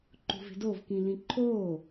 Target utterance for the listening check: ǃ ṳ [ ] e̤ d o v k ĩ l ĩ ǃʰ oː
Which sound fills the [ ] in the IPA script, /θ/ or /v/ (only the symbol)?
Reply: v